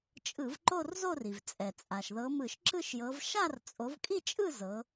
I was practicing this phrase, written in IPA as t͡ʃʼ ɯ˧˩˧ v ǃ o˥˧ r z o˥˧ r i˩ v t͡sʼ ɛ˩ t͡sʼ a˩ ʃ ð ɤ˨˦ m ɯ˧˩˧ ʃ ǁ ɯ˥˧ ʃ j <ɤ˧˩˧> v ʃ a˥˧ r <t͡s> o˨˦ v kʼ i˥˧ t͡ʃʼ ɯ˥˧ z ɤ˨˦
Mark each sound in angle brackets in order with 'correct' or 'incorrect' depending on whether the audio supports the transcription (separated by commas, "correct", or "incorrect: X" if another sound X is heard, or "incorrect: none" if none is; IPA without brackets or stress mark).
incorrect: ɤ˨˦, incorrect: t͡sʼ